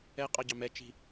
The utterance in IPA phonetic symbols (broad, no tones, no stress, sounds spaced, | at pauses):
ɛ qʼ ɑ ɟ ɑ m ɛ t͡ʃ i̤